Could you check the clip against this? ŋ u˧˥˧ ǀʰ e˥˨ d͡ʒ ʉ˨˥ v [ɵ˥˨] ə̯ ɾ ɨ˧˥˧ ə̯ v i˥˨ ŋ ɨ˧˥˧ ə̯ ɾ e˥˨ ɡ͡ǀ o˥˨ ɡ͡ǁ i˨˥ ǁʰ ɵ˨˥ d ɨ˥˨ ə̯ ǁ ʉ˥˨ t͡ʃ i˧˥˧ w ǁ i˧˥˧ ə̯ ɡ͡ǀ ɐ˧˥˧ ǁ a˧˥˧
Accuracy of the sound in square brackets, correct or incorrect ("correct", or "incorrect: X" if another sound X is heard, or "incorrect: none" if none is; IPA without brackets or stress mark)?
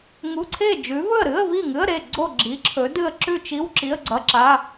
correct